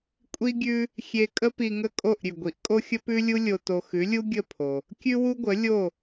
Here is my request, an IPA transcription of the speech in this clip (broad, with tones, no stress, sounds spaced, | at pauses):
kʷʼ i˥ ɡʲ ʉ˥ | xʲ e˧ kʼ ə˥ p i˧ ŋ ə˥˩ kʼ o˥˩ ʔ ɾʲ ʉ˩ ɡʷ i˩˥ ʔ kʼ o˥ xʲ ə˥ p ʉ˥ lʲ u˥ lʲ o˧ t o˧ x ʉ˩˥ lʲ u˥ ɡʲ ə˥˩ pʰ o˩ | kʲ ʉ˥ w u˥ ɡʷ ə˩˥ lʲ o˥˩